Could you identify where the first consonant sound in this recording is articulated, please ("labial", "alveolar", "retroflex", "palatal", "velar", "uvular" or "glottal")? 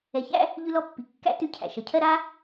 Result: palatal